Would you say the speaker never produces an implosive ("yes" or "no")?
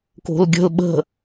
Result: no